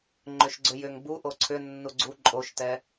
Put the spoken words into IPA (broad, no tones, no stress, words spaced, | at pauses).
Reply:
ŋ͡ǃʏʃɡ͡ǀʏjʏŋ bu ʔoǀʰʏ nːuɡ͡ǀu ǃʼoʃtɛ